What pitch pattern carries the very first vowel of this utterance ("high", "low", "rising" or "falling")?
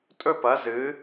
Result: falling